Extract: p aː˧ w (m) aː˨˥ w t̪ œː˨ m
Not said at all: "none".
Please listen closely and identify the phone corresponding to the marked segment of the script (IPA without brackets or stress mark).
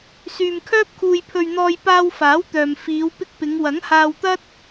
f